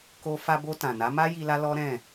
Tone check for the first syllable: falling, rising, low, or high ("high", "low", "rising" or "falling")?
high